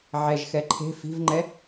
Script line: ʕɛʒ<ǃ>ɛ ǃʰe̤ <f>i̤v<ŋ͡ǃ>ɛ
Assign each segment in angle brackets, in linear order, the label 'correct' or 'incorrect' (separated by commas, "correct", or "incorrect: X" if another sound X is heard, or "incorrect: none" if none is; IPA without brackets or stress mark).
incorrect: x, correct, correct